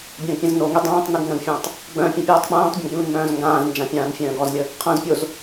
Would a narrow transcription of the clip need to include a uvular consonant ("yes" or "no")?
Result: yes